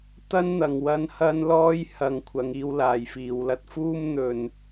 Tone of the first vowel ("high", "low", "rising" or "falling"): high